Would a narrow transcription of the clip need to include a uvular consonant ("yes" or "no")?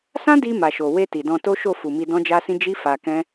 no